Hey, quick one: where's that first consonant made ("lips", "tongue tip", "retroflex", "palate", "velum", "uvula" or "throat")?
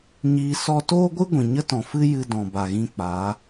palate